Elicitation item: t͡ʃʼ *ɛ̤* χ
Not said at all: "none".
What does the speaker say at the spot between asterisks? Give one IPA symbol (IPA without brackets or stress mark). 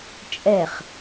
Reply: ɛ